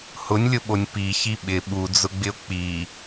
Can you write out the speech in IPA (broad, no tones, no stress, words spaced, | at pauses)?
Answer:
hʊnʲlʲʊɓonʲ piçi ɓɪ ɓud͡zʊɡ͡bɪo̯ k͡pi